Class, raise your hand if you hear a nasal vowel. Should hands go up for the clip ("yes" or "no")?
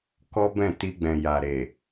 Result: yes